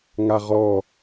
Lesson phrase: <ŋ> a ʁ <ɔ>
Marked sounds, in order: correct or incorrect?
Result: correct, correct

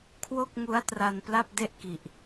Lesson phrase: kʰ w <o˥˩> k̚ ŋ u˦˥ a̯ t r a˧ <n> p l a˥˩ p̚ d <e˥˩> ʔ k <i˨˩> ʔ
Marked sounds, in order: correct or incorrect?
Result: correct, correct, correct, correct

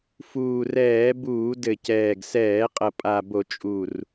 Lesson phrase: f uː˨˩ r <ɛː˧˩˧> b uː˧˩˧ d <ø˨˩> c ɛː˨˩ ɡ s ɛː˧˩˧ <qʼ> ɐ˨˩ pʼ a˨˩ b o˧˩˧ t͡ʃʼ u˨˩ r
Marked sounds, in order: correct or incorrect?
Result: correct, incorrect: ɘ˨˩, correct

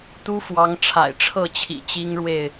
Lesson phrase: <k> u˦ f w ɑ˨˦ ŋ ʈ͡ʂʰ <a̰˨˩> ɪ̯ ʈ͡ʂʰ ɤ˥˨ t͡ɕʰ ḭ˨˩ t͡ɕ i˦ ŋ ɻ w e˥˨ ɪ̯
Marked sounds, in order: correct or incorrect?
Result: incorrect: t̪, correct

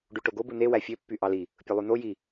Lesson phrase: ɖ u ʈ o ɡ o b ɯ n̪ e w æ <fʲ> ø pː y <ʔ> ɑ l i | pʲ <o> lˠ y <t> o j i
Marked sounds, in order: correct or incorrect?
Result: correct, correct, correct, incorrect: n̪

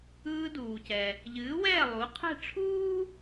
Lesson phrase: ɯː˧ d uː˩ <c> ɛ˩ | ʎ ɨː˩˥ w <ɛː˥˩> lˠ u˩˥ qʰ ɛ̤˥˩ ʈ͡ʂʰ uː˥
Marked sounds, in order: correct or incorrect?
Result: correct, correct

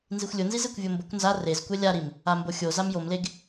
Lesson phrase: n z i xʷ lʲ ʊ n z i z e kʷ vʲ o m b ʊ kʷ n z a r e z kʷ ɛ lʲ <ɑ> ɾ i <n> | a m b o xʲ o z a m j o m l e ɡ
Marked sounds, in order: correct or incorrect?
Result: incorrect: a, incorrect: m

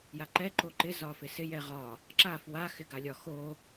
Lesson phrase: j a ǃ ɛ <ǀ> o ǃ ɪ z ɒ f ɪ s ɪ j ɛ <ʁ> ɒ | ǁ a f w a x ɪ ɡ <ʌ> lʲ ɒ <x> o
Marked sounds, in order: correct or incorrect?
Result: incorrect: ǃ, correct, incorrect: a, correct

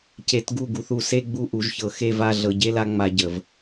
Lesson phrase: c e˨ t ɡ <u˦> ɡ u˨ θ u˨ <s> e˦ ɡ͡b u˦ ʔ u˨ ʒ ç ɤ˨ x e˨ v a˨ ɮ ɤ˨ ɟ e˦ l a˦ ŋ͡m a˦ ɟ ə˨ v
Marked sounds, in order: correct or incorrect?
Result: incorrect: u˦˨, correct

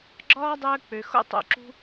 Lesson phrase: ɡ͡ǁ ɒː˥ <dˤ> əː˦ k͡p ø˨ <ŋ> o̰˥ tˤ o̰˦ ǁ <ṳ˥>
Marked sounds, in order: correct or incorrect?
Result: correct, incorrect: x, correct

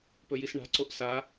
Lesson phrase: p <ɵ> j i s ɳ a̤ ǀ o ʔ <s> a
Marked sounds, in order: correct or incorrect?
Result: correct, correct

